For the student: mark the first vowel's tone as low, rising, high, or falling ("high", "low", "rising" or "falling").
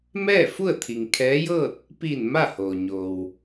falling